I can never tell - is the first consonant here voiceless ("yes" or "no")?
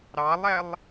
no